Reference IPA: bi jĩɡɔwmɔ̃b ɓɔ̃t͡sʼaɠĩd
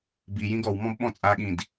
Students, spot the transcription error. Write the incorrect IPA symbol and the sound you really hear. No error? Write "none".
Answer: none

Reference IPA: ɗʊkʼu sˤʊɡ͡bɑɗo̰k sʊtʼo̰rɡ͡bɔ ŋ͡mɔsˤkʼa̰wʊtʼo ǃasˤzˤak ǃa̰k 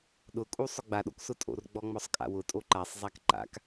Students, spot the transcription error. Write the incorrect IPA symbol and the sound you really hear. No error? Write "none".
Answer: ɑ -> a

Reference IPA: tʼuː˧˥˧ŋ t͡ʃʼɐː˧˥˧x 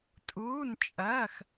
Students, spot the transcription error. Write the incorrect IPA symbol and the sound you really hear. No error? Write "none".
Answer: ŋ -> n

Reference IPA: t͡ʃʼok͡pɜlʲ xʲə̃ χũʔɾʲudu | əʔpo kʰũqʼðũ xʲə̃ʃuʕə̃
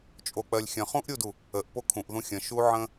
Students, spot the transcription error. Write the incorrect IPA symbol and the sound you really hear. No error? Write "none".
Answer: qʼ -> ʔ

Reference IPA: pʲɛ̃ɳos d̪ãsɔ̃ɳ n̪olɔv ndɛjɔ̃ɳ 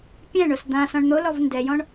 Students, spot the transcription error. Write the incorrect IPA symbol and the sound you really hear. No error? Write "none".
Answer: none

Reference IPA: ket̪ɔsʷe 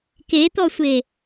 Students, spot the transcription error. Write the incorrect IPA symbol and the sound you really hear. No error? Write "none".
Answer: none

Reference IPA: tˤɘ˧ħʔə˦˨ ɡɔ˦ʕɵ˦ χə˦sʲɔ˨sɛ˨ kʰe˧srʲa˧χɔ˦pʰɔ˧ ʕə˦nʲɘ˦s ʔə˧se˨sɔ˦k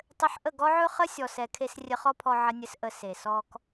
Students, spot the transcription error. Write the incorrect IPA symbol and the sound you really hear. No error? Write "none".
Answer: a˧ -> ə˧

